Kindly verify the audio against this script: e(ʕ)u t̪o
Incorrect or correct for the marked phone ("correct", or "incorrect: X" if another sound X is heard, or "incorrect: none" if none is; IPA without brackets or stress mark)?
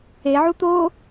correct